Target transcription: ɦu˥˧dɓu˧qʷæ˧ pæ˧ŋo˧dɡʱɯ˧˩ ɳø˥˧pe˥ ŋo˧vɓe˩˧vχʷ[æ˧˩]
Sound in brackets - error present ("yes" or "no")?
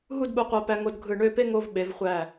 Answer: no